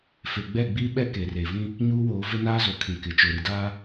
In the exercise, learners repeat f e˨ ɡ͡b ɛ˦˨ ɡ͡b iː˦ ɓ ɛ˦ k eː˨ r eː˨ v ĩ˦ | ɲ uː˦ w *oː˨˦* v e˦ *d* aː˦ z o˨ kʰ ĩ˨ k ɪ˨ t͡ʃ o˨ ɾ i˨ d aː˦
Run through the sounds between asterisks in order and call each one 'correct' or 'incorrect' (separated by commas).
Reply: correct, incorrect